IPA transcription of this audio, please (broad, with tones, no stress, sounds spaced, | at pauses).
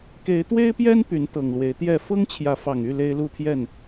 k e˨˦ ɪ̯ t̪ w e˦ ɪ̯ p j ɛ˦ n p y˨˦ n t̪ ɤ˨˩ ŋ l w e˨˦ ɪ̯ t̪ j ɛ˥˨ f ɤ˦ ŋ t͡ɕʰ j ä˨˦ f ɑ˨˩ ŋ y˥˨ l e˦ ɪ̯ l u˥˨ t̪ʰ j ɛ˥˨ n